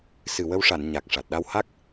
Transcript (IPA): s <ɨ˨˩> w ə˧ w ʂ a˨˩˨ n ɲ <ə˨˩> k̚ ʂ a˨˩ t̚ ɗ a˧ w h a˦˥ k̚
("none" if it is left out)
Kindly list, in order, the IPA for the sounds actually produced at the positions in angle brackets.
ɨ˨˩, a˨˩

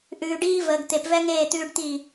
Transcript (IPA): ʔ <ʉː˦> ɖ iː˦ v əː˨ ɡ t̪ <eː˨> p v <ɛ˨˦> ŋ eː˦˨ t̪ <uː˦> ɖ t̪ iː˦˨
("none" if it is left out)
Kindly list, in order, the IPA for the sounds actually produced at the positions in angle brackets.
ʉː˨, e˨, ɛ˦, ʉː˦

